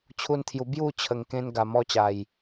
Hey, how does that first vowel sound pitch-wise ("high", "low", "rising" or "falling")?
high